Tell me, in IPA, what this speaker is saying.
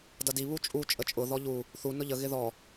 d ʌ d i β u t͡ʃʼ u t͡ʃʼ ə t͡ʃʼ ʊ ð ɔ ʎ u | θ u n ʊ ʎ ə ɣ ɪ ð ɔ

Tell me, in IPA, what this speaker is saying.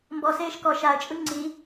m b ɔ s eː ʃ k ɔ ʃ a ə̯ t͡ʃʼ ɯ ŋ͡ǀ i

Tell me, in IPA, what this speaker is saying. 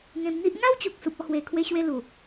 ŋ ẽ˧ m n̪ i˦ ʔ ŋ a˦ w t͡ɕ u˨ k̚ s u˨ p̚ ɔ˧ h w e˨˩ kʰ w e˧ ɕ w e˧ l u˨˩

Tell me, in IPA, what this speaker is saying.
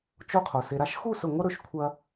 t͡ʃ o˦ qʰ o˨ s e˧ ɾ a˦ ʃ x u˦˨ s ɵ˨ ŋʷ ɐ˦ ɾ ɵ˨ ʃ kʷʰ ɐ˧

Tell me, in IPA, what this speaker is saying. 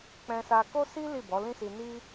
k͡p ɛ̃˧ s a˧ k o˦ s i˦ l i˦˨ b ɔ˨˦ l ĩ˦ s i˧ n i˦

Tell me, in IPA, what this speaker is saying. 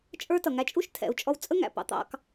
t͡ʃʼ ə˞˦ t ʌ˨ ŋ æ˧ t͡ʃʼ u˦ ʃ tʰ ɛ̰˨ u̯ t͡ʃʼ ɔ˧ w t͡sʼ ə˦ ŋ æ̰˨ p ɑ̰˦ t̪ ɑ̰˦ k

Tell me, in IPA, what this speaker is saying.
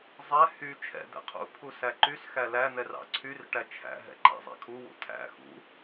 zˤ ɛ h y t͡ʃʰ ɛ̰ d̪ ɛ̰ qʰ ṵ pʰ u s æ ǃ y s x æ l æ n̪ ɛ r ɑ̰ ǀʰ y r ʈ æ t͡ʃʰ æ̰ ɦ ɛ̰ ǃ æ̰ zˤ ɛ̰ kʰ u w ṵ tʰ æ̰ x ṵ

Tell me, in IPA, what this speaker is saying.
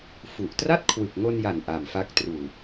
f u˨˩ ʔ t r a˥˩ t̚ kʰ w ɯ˨˩ k̚ ŋ o˧ n j a˨˩ n ʔ a˨˩ m f a˦˥ k̚ t r uː˨˩

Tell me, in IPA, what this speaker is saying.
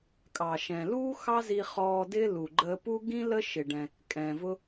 kʼ ɑ˩ ʃ ɛ̃˩ l uː˥ x ɑ˥ z i˧ χ ɔː˧ d ɪː˥ l u˩ ɡ͡ǃ əː˧ p u˥ ɡ ĩ˥ l ə˥ ʃ ɪ˩ ɖ ɛ̃˩ | kʼ ɛ̃ː˩ v ʊ˥

